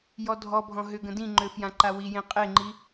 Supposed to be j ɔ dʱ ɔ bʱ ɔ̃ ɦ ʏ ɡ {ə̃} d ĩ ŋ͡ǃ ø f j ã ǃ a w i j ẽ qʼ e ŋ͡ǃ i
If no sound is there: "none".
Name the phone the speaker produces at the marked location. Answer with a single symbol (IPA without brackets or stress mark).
ə̃